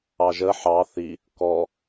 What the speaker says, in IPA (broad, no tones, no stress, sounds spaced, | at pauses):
ɑ ʒ ə ħ ɑ θ i | k ɔ